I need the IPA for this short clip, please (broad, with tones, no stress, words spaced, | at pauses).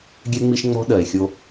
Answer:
ɡʲɛ˦ŋ͡mi˦ʃ ŋ͡mɔ̤˦ɗɜ˨e̯xʲo˦